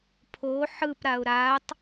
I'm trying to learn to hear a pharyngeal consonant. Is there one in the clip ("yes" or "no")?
yes